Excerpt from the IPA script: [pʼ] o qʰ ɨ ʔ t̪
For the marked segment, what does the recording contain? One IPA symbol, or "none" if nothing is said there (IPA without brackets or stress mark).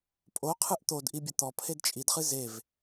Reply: pʼ